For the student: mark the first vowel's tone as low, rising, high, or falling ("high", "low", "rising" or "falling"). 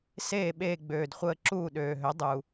falling